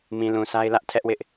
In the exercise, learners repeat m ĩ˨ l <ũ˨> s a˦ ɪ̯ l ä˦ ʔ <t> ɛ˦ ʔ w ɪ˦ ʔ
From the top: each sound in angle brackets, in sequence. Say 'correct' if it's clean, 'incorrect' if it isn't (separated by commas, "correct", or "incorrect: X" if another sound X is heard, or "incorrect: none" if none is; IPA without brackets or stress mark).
correct, incorrect: tʰ